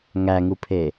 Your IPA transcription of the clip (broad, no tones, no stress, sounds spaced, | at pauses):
ŋ æ ŋ u pʰ e